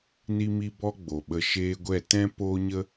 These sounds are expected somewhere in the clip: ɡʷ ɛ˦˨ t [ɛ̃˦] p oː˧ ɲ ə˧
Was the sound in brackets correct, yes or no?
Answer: yes